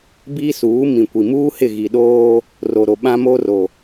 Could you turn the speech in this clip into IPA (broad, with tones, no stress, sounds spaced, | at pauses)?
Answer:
b iː˦ s uː˨˦ m ĩ˨ kʷ i˨ m uː˦ h ɪ˦˨ ɣ i˨ ɗ oː˦ | r o˨ ɾ o˨ ɓ ã˦ m o˦ r o˨